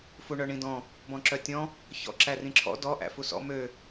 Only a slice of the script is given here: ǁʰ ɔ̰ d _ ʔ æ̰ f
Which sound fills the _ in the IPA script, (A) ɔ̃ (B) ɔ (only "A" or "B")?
B